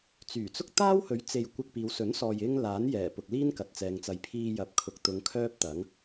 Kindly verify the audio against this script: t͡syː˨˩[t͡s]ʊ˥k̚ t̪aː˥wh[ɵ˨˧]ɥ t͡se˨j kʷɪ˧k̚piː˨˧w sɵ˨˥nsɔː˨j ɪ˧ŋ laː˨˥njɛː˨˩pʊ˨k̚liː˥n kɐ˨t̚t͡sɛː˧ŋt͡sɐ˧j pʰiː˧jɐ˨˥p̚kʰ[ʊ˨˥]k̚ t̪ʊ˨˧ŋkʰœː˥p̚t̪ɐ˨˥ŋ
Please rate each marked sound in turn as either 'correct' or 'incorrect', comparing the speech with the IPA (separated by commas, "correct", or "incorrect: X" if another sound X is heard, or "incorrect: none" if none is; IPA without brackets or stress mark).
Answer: correct, incorrect: ɵ˨˥, correct